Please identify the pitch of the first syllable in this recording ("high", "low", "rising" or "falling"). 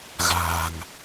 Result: low